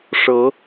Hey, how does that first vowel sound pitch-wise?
rising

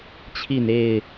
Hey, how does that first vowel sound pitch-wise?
falling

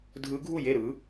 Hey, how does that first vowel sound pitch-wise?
rising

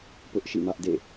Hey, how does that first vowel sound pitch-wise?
high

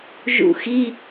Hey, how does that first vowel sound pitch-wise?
falling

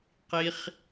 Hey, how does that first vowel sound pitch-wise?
high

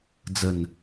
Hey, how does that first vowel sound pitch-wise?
low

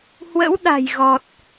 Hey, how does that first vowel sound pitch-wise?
rising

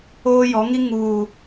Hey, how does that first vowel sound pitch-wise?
high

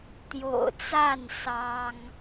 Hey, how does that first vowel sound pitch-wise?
low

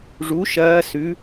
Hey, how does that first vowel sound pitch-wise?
rising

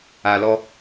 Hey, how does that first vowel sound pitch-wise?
low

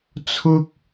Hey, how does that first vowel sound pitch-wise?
high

